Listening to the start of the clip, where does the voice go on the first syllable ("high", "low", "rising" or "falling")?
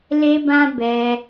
high